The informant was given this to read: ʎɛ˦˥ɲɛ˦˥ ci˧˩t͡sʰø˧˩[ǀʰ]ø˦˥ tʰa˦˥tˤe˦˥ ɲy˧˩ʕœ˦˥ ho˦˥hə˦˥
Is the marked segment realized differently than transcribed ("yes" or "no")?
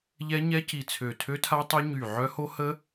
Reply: yes